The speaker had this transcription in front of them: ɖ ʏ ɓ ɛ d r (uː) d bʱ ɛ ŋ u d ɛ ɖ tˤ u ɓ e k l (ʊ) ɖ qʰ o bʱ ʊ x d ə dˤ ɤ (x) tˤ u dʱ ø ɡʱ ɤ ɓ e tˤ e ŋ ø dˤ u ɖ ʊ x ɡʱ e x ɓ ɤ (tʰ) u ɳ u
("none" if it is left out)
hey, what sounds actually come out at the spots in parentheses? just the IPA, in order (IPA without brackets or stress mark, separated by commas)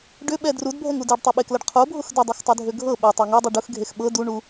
u, ə, x, d